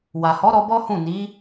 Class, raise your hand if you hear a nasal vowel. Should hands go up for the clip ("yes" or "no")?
yes